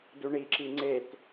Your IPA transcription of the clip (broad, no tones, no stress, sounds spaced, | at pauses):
d u ɳ i ǁ i ŋ͡ǀ e t